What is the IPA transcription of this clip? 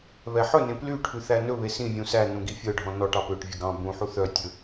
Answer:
βɛħɵnẽ plyʈʰʉ θænɵβe sĩvʲũ sænũ ɡifʲœɖʱɔ̃ nɔʈ ɑpøʈvʲɵ ɡɑ̃ bũħu θœ tʲɵ

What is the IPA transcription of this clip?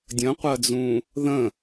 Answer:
dʲə̃qʷɜd͡zũ | ðə̃

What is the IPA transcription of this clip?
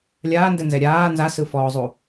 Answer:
lʲaːndɛnzɛ ɾʲaː nzasɯfɔːzˤu

